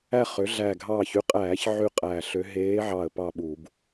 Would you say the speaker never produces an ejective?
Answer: no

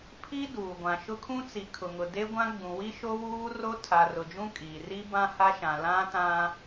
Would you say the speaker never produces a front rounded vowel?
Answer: yes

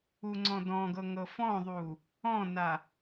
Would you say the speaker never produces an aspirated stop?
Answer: yes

